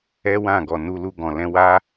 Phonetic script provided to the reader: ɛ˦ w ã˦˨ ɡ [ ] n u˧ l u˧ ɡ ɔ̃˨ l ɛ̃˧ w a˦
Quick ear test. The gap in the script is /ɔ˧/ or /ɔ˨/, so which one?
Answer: ɔ˨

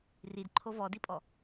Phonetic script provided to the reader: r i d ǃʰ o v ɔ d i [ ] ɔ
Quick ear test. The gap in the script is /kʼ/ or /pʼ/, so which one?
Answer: pʼ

